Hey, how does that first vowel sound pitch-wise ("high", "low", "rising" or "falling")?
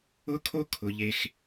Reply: high